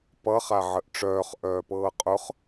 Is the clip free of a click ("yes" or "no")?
yes